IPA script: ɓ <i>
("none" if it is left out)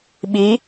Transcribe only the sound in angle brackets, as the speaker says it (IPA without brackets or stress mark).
i